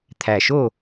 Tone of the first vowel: low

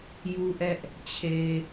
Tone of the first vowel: high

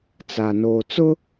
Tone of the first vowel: low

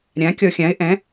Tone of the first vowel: rising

